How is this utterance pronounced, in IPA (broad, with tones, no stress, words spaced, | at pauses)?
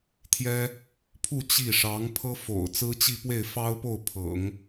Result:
t̪ʰjɛ˥ | pʰu˥˧ t͡ɕi˥˩ ʂɑ˧˥ŋpʰɤ˥fo̰˨˩ʊ̯ t͡sɹ̩˥t͡ɕi˥˧pwe˥˩ɪ̯ fɑ˥ʊ̯po˥˩ʊ̯ pʰɤ̰˨˩˦ŋ